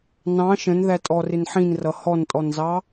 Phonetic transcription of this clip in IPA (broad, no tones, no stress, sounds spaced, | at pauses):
n ɑ̃ ʃ ə̃ n ð æ tʼ ɔ r ɪ n ħ ĩ n r ʌ h ɔ n tʼ ɔ n z ɑ